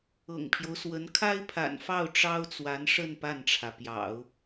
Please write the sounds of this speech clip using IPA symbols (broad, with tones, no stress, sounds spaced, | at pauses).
ɤ̰˨˩ ŋ pʰ j o˦ ʊ̯ s w ə˧˥ n kʰ a˥ ɪ̯ pʰ a̰˨˩ n f ɑ˥˩ ʊ̯ ʈ͡ʂ ɑ˥ ʊ̯ t͡s w a˧˥ n ʂ ə˥˧ n p a˥˩ n ʈ͡ʂʰ ä˩ p j ɑ̰˨˩˦ ʊ̯